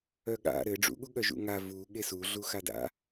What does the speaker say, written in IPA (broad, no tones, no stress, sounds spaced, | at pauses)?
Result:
œ ɠ a̰ ɾ ɘ ɖ͡ʐ ṵ ɠ u ɠ œ ʒ ṵ ŋ a v u ɠ e s u ɮ u x a d a̰